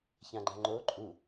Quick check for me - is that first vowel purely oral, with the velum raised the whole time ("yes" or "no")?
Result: no